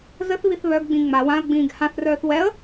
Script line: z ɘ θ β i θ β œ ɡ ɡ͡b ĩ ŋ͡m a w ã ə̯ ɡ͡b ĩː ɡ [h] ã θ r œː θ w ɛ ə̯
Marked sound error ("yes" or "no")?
no